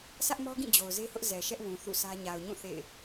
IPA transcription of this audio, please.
sä˦ʔmɔ˦ɡĩ˦˨ d͡ʑo˨ʊ̯ze˦hʊ˦ʔ zɛ˨ʃɛ˦ʔwũ˨ θṵ˦˨sʰä˦ ɲa˨ʊ̯ɲũ˦˨ θḛ˦˨ɪ̯

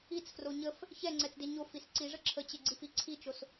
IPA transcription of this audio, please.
it͡sfro ɲəf | çɛŋ͡ǀɛt͡sde ɲofis ǀiʐə ǁʰət͡ɕeɡ͡ǀifi ǀʰit͡ʃos

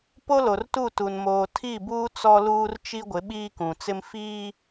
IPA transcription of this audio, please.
po˦lo˨rtu˦˨tu˨n moː˨ tʰi˦˨buː˦ t͡sɔ˦ luː˦rt͡ʃi˦ ɡʷɪ˨˦ɓiː˦kũ˨t͡sɪ˦m fiː˦

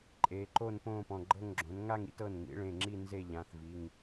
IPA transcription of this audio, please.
ǃʼeː˩˧ǃo˥˧npõː˥˧pɔ̃˩˧˩ ɡ͡ǃɤ˥˧ŋɡ͡ǁõ˩˥n ŋa˥˧ŋḭ˩˥t ɤ˩˧˩nŋḭ˩˥ɭẽ˩˧˩ŋ͡ǁi˥˧ nze˥˧ʎã˩˧˩θvi˩˧˩ŋ

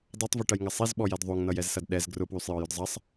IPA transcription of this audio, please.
dˤatˤvɛʈɐjŋɐ sˤizɓɔjɛd ðˤoŋnʌjɛzsɐd ɗɛz ɡrʊpwysˤjɔjʊd zˤɐsˤ

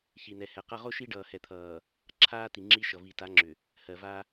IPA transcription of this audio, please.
çi˨nɛ˨hɛ˨qʌ˦ ʁo˦ ʃi˦ɖʌː˨hɛ˨t̪ʰʌː˨ | ǁʰaː˦ti˨ŋ͡ǁi˦ʃʌ˨ vi˨ta˨˦ŋ͡ǁʏ˨ | hɜ˨va˦

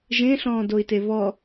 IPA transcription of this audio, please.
ʒẽɬɔ̃ːdoi̯te βɔ

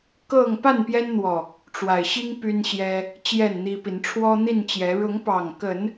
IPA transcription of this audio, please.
kɤ˥˨ŋ pa˥˨npjɛ˦nn̪wɔ˨˩ | ʈ͡ʂwa˨˩ɪ̯ɕi˦ŋ py˦nɕjɛ˦ | t͡ɕjɛ˥˨nn̪i˦pi˨˦n ʈ͡ʂʰwɔ˦n̪i˥˨nt͡ɕjɛ˨˦ ɻʊ˨˦ŋpɑ˨˩ŋkə˨˦n

